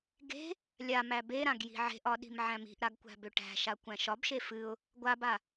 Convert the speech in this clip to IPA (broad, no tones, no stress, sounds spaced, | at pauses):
ɡ e̤ | lʲ a m æ b e ɾ ã ɡ j i̤ ʕ e̤ ʔ ɒ ɗ i̤ m ʕ æ̃ m i̤ ʔ ɾ a ɡ kʷ æ̤ b ø ʈ æ̤ ʃ a kʷ æ̃ ʃ ɒ b ʃ e f ɨ ʊ̯ | ɡʷ a b a